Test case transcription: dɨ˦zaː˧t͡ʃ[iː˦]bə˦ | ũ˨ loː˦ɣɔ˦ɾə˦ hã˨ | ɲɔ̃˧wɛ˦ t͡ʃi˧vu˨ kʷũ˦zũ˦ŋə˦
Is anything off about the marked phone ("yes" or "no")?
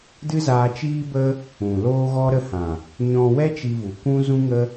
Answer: no